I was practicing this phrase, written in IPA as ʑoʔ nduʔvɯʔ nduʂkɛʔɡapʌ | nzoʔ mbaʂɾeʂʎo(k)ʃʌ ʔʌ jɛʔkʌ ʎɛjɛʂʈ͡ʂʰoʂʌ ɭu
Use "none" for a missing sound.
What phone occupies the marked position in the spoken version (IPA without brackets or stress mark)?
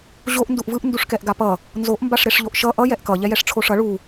ʔ